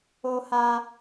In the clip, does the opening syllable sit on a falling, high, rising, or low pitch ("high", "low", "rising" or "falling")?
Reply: high